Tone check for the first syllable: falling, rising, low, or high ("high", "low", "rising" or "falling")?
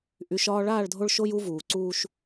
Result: rising